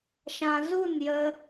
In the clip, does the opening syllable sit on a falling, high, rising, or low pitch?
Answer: low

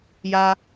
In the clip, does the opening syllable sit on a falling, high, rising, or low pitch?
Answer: high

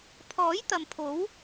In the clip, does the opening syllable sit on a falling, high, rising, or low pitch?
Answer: rising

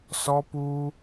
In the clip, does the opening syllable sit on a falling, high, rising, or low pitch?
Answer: high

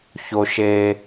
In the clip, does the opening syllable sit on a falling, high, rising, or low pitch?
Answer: low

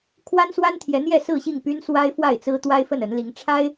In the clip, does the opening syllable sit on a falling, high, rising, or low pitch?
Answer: high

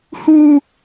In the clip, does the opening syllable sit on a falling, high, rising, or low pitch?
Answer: high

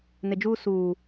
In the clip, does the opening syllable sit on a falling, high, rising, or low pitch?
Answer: low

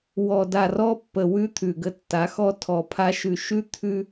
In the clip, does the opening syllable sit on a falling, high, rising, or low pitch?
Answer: low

